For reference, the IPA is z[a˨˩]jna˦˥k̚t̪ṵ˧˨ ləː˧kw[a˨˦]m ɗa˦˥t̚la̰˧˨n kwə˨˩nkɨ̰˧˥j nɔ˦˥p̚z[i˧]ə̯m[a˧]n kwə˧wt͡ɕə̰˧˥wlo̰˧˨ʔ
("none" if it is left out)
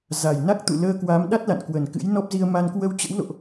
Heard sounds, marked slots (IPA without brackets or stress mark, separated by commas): a˨˩, a˨˦, i˧, a˧